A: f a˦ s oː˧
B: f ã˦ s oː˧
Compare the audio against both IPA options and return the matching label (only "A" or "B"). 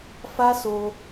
A